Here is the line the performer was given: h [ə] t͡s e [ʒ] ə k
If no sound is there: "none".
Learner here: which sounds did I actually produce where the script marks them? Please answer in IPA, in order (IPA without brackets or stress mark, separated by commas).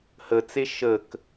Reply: ə, ʃ